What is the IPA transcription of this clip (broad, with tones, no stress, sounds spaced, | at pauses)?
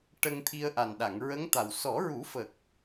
ʈ ə˧ ŋ t̪ʰ i˧ ə̯ ʔ a˨˩ n ɗ a˨˩˨ ŋ ɹ ə˧˥ ŋ t̪ a˨˩ w s ɔ˨˩˦ ɹ u˨˩˦ f ə˨˩ k̚